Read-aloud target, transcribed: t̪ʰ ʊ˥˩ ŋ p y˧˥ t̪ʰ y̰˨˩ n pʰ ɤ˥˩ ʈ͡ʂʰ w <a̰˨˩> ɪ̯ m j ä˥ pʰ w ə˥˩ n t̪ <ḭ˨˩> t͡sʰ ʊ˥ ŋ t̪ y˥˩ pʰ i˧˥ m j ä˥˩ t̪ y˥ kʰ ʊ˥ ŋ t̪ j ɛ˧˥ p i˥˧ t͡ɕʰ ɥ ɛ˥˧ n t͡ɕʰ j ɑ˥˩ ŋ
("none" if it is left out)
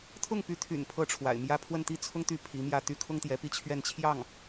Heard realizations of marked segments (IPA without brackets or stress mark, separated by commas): a̰˨˩, i˥